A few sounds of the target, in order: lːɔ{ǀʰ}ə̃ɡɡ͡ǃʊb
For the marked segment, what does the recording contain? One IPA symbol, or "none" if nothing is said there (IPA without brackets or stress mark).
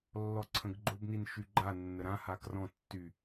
ǀʰ